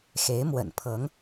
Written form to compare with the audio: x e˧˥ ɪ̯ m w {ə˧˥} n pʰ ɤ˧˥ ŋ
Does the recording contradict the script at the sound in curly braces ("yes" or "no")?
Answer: yes